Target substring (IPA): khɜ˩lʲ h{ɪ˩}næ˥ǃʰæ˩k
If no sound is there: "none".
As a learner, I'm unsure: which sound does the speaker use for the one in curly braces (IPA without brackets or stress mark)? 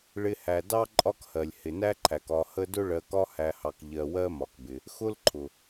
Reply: ɪ˩